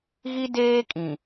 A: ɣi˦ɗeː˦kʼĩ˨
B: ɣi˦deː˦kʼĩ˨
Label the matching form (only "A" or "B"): B